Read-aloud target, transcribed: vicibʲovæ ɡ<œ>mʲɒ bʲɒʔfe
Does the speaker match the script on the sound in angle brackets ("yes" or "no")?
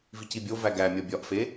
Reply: no